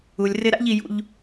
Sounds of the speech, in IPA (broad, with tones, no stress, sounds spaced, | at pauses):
u˧ lʲ r ɪ˦ ɾ a̰˦ ʎ i˧ j ṵ˧ ʎ